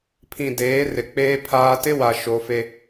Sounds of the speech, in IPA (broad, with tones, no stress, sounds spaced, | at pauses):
pʰ ĩ˨ d eː˨˦ r ɪ˨ k͡p eː˦ pʰ aː˦ t ɪ˦ w a˨ ʃ o˦ f e˦